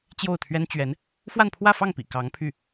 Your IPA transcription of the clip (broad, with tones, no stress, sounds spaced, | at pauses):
t͡ɕ j o˥˩ ʊ̯ t̪ʰ ɥ ɛ˥ n t͡ɕ ɥ ɛ˧˥ n | f w a˥˧ n pʰ w ä˥˧ f ɑ˥˩ ŋ p ḭ˨˩ k ɑ˧˥ ŋ pʰ y˥˩